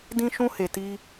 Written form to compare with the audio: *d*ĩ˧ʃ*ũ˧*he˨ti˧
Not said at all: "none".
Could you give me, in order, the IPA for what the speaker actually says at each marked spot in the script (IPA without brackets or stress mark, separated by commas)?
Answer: d, ũ˧